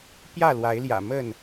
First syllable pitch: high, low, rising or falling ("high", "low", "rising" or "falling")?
falling